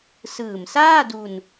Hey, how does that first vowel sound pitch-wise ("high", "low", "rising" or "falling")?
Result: low